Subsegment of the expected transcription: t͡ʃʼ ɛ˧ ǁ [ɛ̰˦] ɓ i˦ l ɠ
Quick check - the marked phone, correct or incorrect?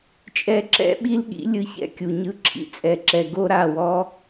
correct